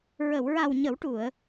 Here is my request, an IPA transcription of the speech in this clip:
ɹə˨˩˨wɹa˨˩w ɲə˨˩˦wʈu˨˩˨ə̯

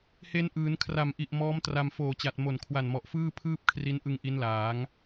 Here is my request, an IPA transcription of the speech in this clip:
he˧nʔɯː˩˦nkʰra˨˩mʔi˨˩ʔ mɔː˦˥mtra˧m foː˨˩t͡ɕa˨˩t̚ mo˨˩nkʰwa˨˩nmɔ˨˩ʔ fɯː˥˩pʰɯː˥˩p̚kʰri˦˥nʔɯ˧ŋ ʔi˦˥nlaː˩˦ŋ

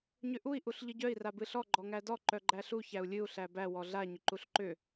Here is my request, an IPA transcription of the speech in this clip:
ɲʏʔui̯ ʔuɬʎɨɟœi̯ rabɨɬɔ ɡ͡ǃɔŋædɔ ǃœɡ͡ǃæɬu çæu̯lʲɨu̯ ɬæbæ wɔɮa ɲʏǃuɬǃʏ

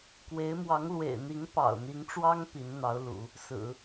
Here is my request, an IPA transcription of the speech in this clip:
kwe˧˥ɪ̯ mwɑ˧˥ŋlwḛ˨˩ɪ̯n̪i˧˥ŋ pɑ̰˨˩ʊ̯n̪i˧˥ŋʈ͡ʂwɑ˥ŋ pi˧˥nn̪ɑ˧˥ʊ̯lṵ˨˩˦ | sɹ̩˨˩˦

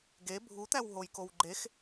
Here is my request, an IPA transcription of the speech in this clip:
ɡe bʱut̪æwɦojkow ɡ͡ǃex

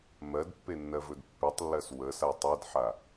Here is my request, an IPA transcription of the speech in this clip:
mɜdpːenːɜvɵd pːʉtˤlːɜs wəsa tˤedħa

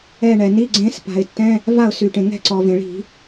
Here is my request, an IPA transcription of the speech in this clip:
ɛ˦˨ɳɛ˩ni˧˥˧ɡ͡ǀẽ˦˥s pa̤˩ɪ̯tːɛ̃˧˥˧ | va˦˨ʊ̯sy˩ʈẽ˩ŋɛ̤˦˨ ǀɔ˩vẽ˩ɭi̤˧˩˧

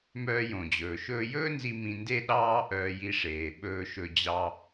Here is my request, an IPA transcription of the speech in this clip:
mœː˧jõ˩d͡ʑɵː˩ ʃɵː˧jɵː˥nzi˧ mĩ˧nde˥ ɗɑː˥ʔœː˧j i˧ʂeː˩ ɓɵː˧ʃɵ˧ d͡ʑɑ˧

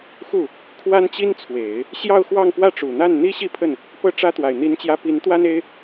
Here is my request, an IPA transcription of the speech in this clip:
xu˥˩ | kʰwa˥nt͡ɕi˥nt͡sʰwe˨˩˦ɪ̯ | ɕjɑ˥˧ʊ̯xwɑ˥˧ŋpwä˥˩ʈ͡ʂu˨˩ n̪a˥˩nn̪i˥ɕi˥˧pʰə˥˩n | pɤ˥˩ʈ͡ʂä˥t̪wa˨˩ɪ̯ n̪i˧˥nt͡ɕjä˧˥ pi˧˥nt̪wa˥ne˥ɪ̯

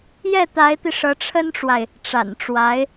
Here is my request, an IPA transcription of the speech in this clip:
jɛ˥˩t̪a˧˥ɪ̯t̪i˧ ʂɤ˧˥ʈ͡ʂʰə˥nʈ͡ʂwa˨ɪ̯ | ʈ͡ʂa̰˨˩nʈ͡ʂwa˧˥ɪ̯

